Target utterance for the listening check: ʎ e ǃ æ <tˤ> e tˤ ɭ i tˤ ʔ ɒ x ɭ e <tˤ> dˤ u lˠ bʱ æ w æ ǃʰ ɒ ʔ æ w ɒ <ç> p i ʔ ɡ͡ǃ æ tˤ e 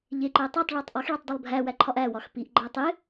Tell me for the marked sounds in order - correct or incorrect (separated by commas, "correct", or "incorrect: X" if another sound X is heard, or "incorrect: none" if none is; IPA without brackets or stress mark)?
correct, correct, incorrect: x